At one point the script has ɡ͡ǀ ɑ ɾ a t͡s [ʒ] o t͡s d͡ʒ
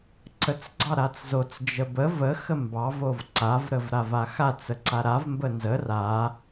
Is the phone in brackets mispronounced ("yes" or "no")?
yes